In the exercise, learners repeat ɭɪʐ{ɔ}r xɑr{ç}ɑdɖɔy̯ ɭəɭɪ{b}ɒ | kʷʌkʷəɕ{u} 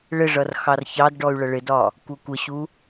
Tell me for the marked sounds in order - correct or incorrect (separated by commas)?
incorrect, correct, incorrect, correct